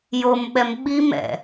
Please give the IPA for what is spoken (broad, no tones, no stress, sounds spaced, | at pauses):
j o m ɓ ɛ m ɓ i m ɛ̰